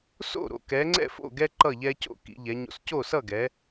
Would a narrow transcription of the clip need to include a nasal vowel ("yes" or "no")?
no